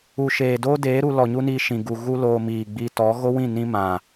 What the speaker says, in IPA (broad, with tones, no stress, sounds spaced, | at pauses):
u˨ ʃ eː˨ d oː˦ d eː˨˦ ɾ u˧ l ɔ˨ ɲ u˦ n i˧ ʃ ĩ˨ ɡ u˨ ɣ u˦ l oː˧ m iː˨ ɡ͡b i˧ t ɔ˨˦ ɣ o˦ w ĩ˦˨ n ĩ˦ m ã˨